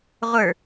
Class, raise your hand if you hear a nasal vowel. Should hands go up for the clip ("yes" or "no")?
no